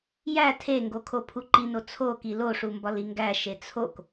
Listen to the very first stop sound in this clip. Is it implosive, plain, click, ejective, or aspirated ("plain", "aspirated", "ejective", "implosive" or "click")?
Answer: aspirated